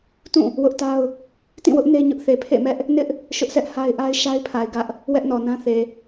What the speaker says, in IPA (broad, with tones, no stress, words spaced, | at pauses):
tũ˦˨ | wʊ˦ʔta˦ʊ̯ | tĩ˦˨wʊ˦ʔ ne˦ɲʊ˦ʔ θe˨pʰḛ˦˨mɛ˦ʔ | nɪ˦ʔ | ʃʊ˦ʔsɛ˦ʔ ha˦ɪ̯ʔa˦ɪ̯ ʃa˦ɪ̯pʰa˨ɪ̯ ɡä˦ʔ | wɛ˦ʔnɔ˨nã˦θe˨